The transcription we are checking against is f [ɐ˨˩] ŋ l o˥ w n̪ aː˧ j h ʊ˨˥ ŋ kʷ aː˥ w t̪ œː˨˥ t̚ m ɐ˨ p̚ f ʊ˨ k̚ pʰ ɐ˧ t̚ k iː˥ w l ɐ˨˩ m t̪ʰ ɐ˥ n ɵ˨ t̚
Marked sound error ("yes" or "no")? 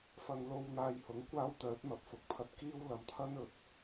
yes